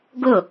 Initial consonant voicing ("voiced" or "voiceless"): voiced